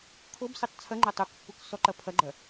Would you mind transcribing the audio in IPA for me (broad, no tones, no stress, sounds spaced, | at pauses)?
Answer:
kʰ o b s ɨ tˤ t͡sʰ ɐ ŋ͡ǃ ɐ tˤ u k pː u k s ɔ ǃ ɐ pʰ ɐ ɡ͡ǃ ɐ